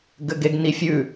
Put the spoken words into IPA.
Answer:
ɡ ɘ ɡ e ɡ n i fʲ ʉ

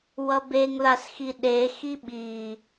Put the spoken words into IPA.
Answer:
w ʌ b e ŋ ð a s x i ɗ e x i ɓ i

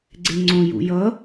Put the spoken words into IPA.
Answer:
ɡ͡ǀ e ŋ͡ǀ õ j ṵ j ʌ

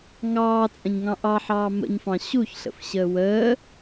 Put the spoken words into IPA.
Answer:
ŋ ɑː t͡sʼ ə̃ ɲ ŋ ɑ̃ ʔ ɑ ħ ɑː m ə̰ ɲ f ɑ̃ ɕ u ç ɬ ə̰ f ɕ əː w əː

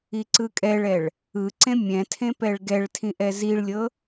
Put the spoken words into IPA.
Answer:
i ǀ ɯ kʼ ɛ ɭ ɛ ɭ | ɯ ǀ ẽ mʲ ɛ̃ tʰ ẽ p ɛ ɭ ɡ ɛ ɭ tʰ ĩ ʔ ɛ z i ɭ lʲ ɤ

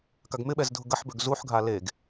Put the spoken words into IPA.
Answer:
k a ɡ m ɪ ɓ ɛ z dʱ ʊ ɡ ɐ ħ b ø ɡ z u ħ ɡʱ a l e ɡ

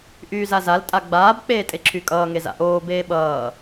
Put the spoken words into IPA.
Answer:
ʔ yː z a z a l tʼ a ɡ͡b aː b k͡p eː tʼ e ǁʰ y kʼ ʌː ŋ e z a̰ ʔ oː b eː ɓ ʌː

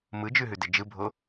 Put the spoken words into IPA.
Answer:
m ɯ d͡ʒ ʉ ɦ ʉ d ɪ d͡ʒ ɯ bʱ o

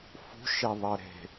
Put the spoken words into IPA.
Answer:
f ṳ ʃ e ðˤ ɜ ɾ e̤

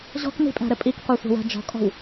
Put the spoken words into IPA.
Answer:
ʑ ɔ̤ k n i̤ pʼ æ̤ ɾ ɘ pʼ i k qʷ ɛ sʷ ɛ̤ w æ̤ d͡ʒ ɔ̤ kʼ ɔ̤ w

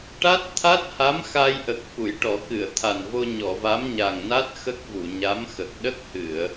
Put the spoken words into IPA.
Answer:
ʈ a˦˥ t̚ t̪ʰ a˦˥ t̚ h a˧˥ m x a˧ j ʔ ə˨˩ k̚ f u˨˩˨ j ʈ ɔ˨˩˦ k ɨ˨˩˨ ə̯ t̪ʰ a˨˩ n v o˧ ɲ ɔ˨˩˨ v a˧˥ m ɲ a˨˩ ŋ n a˦˥ t̚ x ə˦˥ k̚ v u˨˩˨ ɲ a˧˥ m x ə˨˩ k̚ ɗ ə˦˥ k̚ h ɨ˨˩˨ ə̯

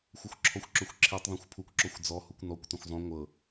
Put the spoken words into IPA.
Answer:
xʷ ɤ xʷ ǁʰ ɔ xʷ ǁ ɵ xʷ ǁʰ i tˤ ðˤ õ xʷ pʰ u kʷ ǁ ɔ xʷ d͡z ɔ h u kʷ n ɔ kʷ t õ xʷ zˤ ũ ŋʷ ɤ

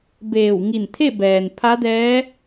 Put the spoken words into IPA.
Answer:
b eː˧˩ w ŋ i˧˩ n t̪ʰ e˥˨ b ɛː˩ n pʰ a˧˥ d ɛː˧˥

